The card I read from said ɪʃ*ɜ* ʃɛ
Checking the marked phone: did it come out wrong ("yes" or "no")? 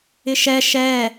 yes